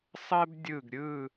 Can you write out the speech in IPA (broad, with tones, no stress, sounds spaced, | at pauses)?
sˤ ɜ˥ b dʲ ɯ˧˩ ɡ ɾʲ ɯ˧˩